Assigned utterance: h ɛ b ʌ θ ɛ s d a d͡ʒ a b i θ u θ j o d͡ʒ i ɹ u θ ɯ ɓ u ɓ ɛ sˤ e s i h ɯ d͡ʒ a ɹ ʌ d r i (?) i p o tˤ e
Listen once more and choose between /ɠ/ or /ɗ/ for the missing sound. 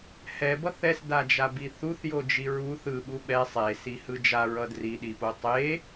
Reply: ɗ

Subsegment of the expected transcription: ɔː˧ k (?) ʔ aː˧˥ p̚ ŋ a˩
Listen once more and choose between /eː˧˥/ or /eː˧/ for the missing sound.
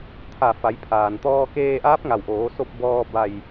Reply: eː˧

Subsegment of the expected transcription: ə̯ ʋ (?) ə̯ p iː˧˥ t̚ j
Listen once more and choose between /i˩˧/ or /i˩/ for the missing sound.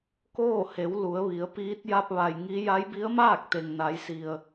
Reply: i˩˧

